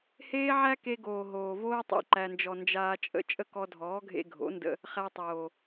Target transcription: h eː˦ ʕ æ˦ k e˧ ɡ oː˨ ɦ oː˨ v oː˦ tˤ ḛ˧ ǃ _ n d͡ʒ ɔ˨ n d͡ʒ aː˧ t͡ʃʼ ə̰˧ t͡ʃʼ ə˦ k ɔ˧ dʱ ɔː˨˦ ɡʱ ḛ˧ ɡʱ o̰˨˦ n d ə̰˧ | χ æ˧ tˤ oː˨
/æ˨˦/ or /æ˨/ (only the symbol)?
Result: æ˨